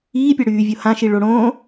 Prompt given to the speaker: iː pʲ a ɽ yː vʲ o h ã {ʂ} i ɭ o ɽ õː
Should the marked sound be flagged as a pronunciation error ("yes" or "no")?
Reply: yes